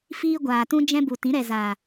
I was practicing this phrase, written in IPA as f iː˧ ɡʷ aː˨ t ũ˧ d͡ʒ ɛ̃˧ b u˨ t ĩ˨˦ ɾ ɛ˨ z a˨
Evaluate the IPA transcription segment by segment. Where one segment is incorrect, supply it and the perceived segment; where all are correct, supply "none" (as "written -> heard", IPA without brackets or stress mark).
none